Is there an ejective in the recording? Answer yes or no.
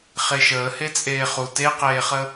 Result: yes